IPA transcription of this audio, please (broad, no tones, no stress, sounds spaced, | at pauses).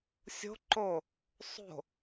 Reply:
sʲ o̤ ǃ o | sˤ o̤